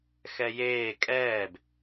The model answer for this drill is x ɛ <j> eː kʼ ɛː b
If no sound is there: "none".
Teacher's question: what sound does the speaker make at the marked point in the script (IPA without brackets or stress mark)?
j